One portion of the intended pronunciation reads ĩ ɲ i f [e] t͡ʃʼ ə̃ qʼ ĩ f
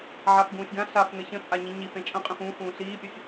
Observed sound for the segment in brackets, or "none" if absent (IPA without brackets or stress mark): ẽ